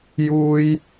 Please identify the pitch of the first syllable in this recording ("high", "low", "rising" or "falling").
high